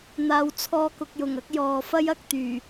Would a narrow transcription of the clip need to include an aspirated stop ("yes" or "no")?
yes